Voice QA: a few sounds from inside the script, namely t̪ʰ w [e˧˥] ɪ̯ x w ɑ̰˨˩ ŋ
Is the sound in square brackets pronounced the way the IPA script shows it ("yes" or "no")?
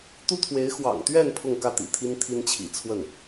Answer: yes